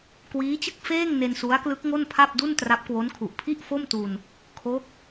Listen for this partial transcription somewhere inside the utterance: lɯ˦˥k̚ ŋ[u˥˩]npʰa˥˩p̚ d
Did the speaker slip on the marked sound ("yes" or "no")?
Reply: yes